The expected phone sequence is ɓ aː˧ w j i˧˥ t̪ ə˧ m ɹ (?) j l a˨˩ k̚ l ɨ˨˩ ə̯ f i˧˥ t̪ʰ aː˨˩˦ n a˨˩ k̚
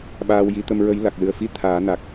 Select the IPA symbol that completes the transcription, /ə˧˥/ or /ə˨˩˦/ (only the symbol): ə˧˥